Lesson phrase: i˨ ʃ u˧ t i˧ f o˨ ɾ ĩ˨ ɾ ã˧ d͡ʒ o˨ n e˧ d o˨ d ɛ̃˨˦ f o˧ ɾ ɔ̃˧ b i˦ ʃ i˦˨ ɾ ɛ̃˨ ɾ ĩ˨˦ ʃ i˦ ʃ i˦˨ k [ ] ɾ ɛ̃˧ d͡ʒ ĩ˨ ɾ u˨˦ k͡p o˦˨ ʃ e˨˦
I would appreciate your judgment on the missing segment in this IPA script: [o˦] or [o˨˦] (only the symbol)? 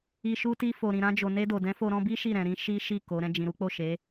o˨˦